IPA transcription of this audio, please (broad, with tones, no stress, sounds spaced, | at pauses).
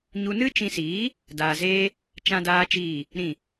ɲ u˧ n ɨ˦ t͡ʃ ĩ˧ s iː˨˦ | d aː˧ z eː˦ | t͡ʃ ã˦ d aː˦ t͡ʃ iː˦˨ | ɾ ĩ˦˨